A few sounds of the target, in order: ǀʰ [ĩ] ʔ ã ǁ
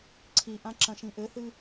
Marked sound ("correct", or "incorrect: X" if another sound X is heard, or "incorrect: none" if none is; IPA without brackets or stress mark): incorrect: i